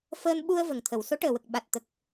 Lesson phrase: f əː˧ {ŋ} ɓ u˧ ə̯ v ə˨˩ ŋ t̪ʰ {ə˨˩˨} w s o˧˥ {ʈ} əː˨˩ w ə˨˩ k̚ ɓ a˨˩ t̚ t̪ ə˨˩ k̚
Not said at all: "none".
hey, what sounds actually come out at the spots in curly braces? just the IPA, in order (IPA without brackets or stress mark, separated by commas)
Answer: n, ə˨˩˨, ʈ